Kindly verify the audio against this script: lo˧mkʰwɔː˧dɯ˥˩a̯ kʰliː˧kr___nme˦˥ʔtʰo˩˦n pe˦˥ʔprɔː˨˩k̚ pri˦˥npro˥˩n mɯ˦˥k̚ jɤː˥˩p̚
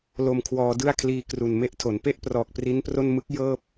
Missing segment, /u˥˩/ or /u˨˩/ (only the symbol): u˨˩